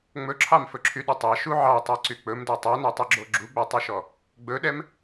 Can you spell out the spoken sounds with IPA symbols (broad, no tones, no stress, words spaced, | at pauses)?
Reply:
ŋ͡mɵǁʰɑmfɵǁʰy ɗɵtˤɑ ʃuʕɑtˤɑǀy k͡pɵmdɛ tˤɛnɔtˤɵɡ͡ǁo ɡ͡ǁuɡ͡bɛtˤuʃɔ | ɡ͡bɵɗɛm